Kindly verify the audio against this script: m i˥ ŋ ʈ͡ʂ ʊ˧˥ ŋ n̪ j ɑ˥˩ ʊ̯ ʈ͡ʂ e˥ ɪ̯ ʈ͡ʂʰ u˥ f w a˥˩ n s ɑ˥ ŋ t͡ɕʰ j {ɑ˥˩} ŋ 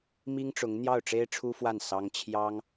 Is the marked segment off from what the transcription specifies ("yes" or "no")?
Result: yes